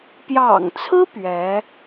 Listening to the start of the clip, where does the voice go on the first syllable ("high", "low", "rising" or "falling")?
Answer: low